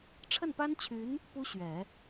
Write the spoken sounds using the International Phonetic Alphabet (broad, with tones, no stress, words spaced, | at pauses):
ʈ͡ʂʰə˥˩npa˥nt͡ɕʰy˧˥n | pu˥ɕɥɛ˨˩˦